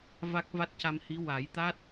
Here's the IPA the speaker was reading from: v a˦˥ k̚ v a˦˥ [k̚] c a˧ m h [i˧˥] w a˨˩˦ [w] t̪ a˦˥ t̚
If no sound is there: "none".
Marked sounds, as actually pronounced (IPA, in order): t̚, i˧˥, j

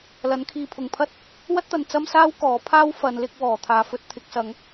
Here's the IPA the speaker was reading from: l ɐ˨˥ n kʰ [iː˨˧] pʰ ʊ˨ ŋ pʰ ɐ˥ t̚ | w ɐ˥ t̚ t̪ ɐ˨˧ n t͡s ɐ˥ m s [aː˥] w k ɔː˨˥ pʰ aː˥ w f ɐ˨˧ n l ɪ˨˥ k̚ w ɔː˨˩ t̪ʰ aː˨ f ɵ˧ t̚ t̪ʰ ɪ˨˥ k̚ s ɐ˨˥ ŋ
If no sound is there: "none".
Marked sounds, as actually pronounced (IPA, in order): iː˨˧, aː˥

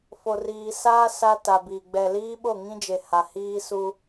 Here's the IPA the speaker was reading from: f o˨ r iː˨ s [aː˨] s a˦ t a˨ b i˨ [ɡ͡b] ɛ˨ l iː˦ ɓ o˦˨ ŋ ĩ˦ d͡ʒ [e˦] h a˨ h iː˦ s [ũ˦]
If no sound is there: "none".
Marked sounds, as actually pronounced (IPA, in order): aː˦, ɡ͡b, e˨, u˦

